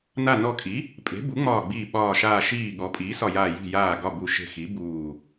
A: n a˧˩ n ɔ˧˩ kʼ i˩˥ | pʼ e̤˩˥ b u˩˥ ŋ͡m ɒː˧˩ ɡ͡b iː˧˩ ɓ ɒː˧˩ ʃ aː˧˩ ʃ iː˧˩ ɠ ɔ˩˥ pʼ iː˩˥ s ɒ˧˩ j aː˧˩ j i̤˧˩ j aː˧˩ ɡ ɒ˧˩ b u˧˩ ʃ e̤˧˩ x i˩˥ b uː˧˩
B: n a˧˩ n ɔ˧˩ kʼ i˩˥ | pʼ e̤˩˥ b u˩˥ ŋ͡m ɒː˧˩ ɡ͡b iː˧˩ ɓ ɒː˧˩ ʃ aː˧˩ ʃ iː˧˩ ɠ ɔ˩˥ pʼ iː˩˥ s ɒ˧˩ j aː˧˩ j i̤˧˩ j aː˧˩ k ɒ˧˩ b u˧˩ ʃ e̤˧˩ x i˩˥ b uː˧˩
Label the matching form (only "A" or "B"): A